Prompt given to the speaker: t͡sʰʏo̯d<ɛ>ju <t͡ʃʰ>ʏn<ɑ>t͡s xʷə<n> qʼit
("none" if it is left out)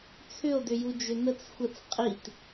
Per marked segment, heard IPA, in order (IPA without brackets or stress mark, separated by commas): ʏ, d͡ʒ, ə, t͡s